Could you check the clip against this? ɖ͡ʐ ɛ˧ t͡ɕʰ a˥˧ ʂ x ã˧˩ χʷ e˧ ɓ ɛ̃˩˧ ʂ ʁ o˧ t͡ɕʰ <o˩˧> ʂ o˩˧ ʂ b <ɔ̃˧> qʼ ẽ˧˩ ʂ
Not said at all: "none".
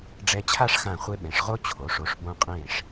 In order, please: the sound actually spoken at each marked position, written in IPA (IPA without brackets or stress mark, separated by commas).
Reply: o˩˧, õ˧